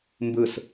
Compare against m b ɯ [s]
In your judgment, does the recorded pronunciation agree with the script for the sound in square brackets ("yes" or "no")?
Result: yes